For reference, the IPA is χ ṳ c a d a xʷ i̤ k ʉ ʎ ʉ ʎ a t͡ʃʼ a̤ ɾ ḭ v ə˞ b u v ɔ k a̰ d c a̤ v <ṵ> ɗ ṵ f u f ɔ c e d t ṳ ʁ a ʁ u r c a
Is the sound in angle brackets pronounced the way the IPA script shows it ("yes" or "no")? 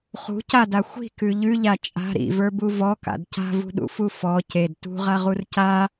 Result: no